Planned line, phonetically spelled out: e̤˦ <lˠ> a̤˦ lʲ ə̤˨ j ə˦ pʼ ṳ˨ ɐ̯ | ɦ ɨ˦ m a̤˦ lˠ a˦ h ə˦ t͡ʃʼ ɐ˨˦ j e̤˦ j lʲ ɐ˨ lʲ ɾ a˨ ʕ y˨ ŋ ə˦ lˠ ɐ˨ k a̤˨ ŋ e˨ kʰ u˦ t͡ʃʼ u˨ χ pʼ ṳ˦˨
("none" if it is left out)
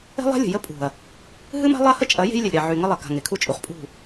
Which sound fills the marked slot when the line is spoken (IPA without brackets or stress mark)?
lˠ